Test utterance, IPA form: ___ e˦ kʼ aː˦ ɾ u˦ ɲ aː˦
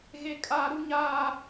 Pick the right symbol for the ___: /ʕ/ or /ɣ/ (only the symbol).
ɣ